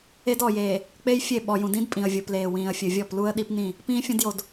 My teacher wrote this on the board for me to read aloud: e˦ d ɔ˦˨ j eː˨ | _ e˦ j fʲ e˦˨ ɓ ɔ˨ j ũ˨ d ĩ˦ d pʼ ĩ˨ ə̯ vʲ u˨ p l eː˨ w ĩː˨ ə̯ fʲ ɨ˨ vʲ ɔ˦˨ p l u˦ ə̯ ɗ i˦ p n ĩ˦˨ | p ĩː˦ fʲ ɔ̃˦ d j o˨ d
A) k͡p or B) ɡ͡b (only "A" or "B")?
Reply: A